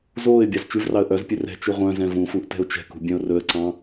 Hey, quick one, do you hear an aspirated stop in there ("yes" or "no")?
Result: no